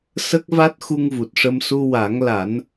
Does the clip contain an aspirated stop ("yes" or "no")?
no